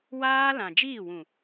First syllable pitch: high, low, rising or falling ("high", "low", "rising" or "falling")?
high